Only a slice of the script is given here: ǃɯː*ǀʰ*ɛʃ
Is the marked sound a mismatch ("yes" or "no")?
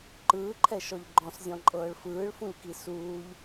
yes